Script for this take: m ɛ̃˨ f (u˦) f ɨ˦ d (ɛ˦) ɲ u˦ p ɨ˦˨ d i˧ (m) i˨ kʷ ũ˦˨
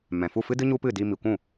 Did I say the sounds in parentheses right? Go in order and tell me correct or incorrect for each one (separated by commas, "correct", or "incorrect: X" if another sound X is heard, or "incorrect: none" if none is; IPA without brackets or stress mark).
incorrect: u˦˨, incorrect: ɨ˦, correct